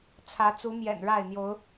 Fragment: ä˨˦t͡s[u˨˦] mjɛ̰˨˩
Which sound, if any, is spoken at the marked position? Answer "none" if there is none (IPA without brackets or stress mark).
u˨˦